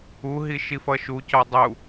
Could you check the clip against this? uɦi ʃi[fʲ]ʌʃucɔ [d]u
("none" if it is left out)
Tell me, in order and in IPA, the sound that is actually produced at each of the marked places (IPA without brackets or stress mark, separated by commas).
f, dˤ